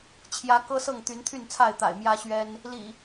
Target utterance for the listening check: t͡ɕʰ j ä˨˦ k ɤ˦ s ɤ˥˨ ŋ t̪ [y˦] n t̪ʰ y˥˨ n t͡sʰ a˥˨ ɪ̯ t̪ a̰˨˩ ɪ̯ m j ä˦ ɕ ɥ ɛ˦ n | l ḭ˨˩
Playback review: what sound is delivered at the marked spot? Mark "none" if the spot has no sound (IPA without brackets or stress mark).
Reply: y˨˦